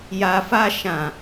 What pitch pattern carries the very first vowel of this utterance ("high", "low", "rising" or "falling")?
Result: low